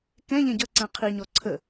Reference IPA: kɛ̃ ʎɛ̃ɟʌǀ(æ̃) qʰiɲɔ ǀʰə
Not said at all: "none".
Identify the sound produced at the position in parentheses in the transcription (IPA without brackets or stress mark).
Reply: æ̃